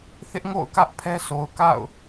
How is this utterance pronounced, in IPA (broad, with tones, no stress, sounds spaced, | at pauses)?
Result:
θ ɪ˦ ʔ ŋ o̰˦˨ ʊ̯ k ä˦ ʔ pʰ ɛ˦ sʰ o˨ ʊ̯ k a̰˦˨ ʊ̯